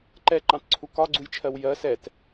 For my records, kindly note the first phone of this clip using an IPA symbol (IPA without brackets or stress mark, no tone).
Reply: ǃ